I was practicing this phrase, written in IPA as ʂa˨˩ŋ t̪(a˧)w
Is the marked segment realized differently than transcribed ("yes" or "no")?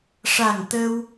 yes